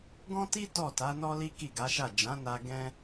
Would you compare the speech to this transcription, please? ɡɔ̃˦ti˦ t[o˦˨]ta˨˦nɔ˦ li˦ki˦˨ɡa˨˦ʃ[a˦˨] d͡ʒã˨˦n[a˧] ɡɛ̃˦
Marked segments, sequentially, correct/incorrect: incorrect, correct, correct

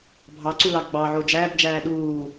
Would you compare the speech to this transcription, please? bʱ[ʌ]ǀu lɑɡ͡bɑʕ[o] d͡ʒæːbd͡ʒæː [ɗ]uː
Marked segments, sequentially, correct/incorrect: incorrect, correct, correct

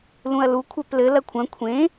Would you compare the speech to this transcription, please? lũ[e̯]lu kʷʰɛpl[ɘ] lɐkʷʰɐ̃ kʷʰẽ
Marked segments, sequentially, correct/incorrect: incorrect, correct

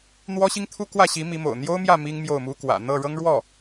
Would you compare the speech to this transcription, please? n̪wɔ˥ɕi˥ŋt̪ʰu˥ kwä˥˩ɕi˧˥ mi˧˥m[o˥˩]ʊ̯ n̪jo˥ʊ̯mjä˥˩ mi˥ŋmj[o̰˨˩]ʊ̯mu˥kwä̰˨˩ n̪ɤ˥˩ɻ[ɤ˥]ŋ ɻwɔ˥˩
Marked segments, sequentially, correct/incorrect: incorrect, incorrect, correct

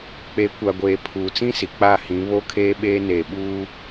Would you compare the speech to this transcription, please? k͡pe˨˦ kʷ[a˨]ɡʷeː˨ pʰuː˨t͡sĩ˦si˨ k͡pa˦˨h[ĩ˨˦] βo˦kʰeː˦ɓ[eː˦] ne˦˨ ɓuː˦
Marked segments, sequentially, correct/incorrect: correct, correct, correct

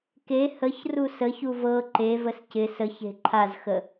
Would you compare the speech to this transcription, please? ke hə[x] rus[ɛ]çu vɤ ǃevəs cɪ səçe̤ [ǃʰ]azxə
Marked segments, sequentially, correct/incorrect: incorrect, incorrect, correct

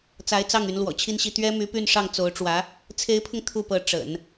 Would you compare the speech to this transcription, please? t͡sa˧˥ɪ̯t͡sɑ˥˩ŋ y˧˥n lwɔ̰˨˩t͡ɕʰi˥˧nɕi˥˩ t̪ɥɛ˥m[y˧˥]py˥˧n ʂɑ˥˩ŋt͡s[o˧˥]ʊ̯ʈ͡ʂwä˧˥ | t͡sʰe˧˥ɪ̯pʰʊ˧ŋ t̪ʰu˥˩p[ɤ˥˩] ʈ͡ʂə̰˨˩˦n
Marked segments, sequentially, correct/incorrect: correct, correct, incorrect

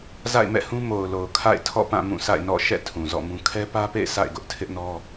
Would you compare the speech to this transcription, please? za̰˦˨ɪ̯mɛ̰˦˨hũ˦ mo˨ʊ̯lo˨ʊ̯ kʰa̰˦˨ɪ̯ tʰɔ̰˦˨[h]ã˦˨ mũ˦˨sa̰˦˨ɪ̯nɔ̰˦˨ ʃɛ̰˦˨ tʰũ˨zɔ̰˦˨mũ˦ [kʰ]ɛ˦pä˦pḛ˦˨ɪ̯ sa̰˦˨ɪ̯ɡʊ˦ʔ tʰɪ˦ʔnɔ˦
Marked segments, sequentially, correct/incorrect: incorrect, correct

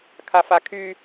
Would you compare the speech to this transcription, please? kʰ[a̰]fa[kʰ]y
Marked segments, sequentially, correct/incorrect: incorrect, correct

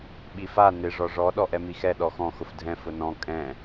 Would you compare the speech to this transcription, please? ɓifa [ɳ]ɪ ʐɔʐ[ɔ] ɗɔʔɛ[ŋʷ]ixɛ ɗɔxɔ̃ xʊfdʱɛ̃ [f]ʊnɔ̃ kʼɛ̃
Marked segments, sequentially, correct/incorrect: incorrect, correct, incorrect, correct

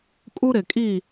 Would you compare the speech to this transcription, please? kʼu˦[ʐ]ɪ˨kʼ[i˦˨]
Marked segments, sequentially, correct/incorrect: incorrect, correct

